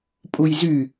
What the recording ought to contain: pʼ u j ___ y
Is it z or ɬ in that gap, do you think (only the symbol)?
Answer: z